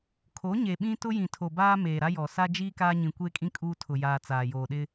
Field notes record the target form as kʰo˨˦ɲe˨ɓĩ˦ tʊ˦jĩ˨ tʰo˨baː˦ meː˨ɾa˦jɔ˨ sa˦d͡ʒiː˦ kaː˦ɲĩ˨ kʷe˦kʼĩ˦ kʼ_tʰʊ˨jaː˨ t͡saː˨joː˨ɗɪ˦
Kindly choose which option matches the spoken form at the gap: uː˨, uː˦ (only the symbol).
uː˦